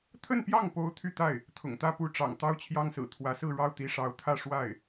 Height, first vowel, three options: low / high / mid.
mid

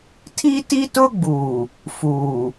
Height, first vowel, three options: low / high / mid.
high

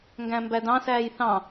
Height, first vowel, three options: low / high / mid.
low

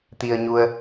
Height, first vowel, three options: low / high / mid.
high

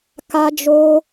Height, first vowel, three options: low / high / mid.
low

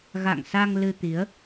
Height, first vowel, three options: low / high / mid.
low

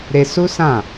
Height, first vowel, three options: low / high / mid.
mid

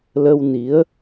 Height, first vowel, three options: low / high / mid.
mid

